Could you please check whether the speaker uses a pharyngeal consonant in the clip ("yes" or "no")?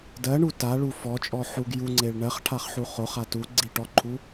yes